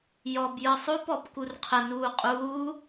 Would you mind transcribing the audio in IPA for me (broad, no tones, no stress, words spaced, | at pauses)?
jɔbjɯ sˤopɔp kurqʰə nuːqʼuː